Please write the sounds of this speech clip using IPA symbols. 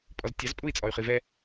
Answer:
pʼɔztʲɑzpʼui̯ t͡sʼɔy̯χivɛ

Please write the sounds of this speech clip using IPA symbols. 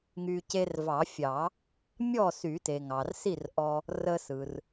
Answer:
ŋy˧ ce˧rvɑ˨˩˦fʲɑ˨˩˦ | mʲɔ˥˨sy˨˩˦te˩ ŋɑ˩rsi˥˨r ʔɔ˧ | rə˧sɯ˩r

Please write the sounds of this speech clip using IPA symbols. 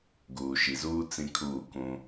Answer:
ɡuː˨ʃi˨zuː˦ t͡sĩ˦kʰuː˦˨kũ˦

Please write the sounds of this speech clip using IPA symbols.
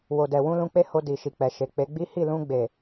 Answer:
wo˨dɛ˨wũ˧ lũ˧k͡pe˦ho˧ di˨ʃi˨k͡pɛ˨ʃe˨ k͡pe˨˦ɡ͡bi˦ hi˦˨lũ˧ɡ͡be˨

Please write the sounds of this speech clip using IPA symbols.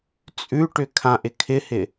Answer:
t͡sʼʉʈʏ kʰãʔɪ kʰɪhɪ

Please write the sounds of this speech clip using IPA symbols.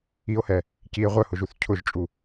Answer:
io̯hɛ | cie̯ ʁʷœhʊʒuθ cʰʊʒt͡ʃʼu

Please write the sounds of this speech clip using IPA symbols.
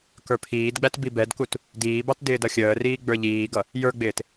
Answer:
kə˞pʰiːdɡ͡bæt bibɛdkut | diːbɑt dɪːdʌxʲəːriː ɡ͡bə˞ʎiːɡʌ | jə˞ɡ͡bɪːt

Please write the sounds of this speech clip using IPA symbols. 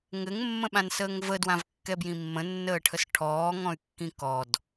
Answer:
ŋɘŋmːə̃ɓãnsəːŋ vədwãvkːɛbjĩ mːə̃nːəːʈʰəs ʈʰɔːŋɔ̃y̯kːĩ kɔd

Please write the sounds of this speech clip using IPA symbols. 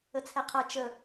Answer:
ət͡sʰɛqʰʌ t͡ʃə

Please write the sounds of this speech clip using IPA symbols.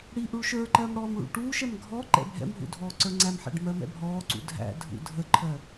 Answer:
ɽiʔuɭ ʃə˞ǃɜm ɽɔːmɭṵʈuːʃɛm ɡʱɔ ǃɛ̰bʱɛ̰mɦṵ dʱɔːǀə˞ŋ͡ǀæmħæ̰ɖ mɜmɛ̰bʱɔːǀṵ dʱæ̰ dʱṵdʱəǃʰɜ

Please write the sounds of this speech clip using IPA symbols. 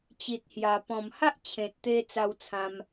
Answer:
t͡ɕi˨t̚hja˨˩ pɔ̃˨˩m ha˦ʔ t͡ɕʰẽ˨t̚t̪e˧ t͡sa˧wt͡sʰã˧m

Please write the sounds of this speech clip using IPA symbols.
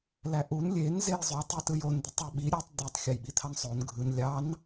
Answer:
læʔun lʲen zejzˤy tˤitɯjon d̪ytˤøɓi ɾʲɯtˤ d̪etˤ xʲɑjɓit̪ʰɑnsˤon ɡʱɯn lʲɑn

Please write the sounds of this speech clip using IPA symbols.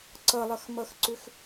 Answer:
ǀʌlˠʌxmʌxǀʏx

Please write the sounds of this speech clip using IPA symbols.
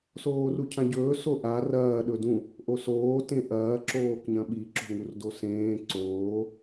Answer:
soːrucʰãɟɵː soʔa rɐː ɗɵdũ | ʔosoː tẽʔɐː ǁoːkɲɐ̃ɓi ǁo̤ŋurdosẽː ǀoː

